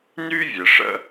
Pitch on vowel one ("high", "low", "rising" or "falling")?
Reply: high